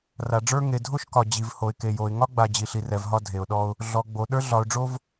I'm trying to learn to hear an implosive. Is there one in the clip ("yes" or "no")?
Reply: yes